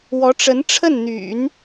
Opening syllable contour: rising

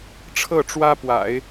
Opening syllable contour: falling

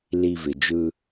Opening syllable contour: low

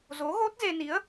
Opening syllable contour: rising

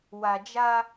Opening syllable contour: low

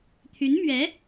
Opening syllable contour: rising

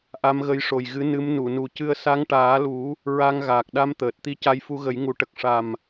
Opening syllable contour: rising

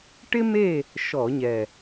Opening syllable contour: high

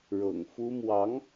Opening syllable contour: low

